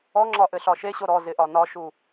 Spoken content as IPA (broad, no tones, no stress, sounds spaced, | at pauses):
ɔ ŋ͡ǁ ɒ ʔ ɘ ɬ ɒ ʃ e ɕ o ɾ ɔ z ɪ ʔ ɒ n ɒ ʃ u